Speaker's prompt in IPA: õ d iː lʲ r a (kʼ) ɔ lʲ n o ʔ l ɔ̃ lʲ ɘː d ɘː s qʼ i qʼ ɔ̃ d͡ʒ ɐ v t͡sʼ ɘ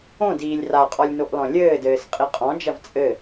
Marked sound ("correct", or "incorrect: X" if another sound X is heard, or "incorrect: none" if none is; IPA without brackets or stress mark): incorrect: qʼ